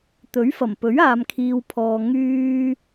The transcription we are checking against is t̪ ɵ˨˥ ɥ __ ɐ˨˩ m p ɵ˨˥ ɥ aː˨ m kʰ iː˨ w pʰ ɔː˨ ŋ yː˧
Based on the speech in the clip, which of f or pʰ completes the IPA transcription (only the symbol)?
f